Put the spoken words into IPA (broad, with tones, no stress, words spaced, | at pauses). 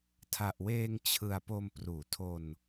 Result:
tʰa˨˩ʔweː˧ŋ t͡ɕʰɯ˨˩a̯ po˧m pruː˩˦tʰo˧n